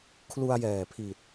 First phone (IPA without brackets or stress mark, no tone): kʰ